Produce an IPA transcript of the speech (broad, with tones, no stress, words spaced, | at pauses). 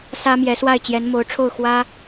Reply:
sä˥mjɛ˧˥swa˥˩ɪ̯ t͡ɕjɛ˧˥nmo˧˥ʊ̯ʈ͡ʂʰo˥˩ʊ̯ xwä˥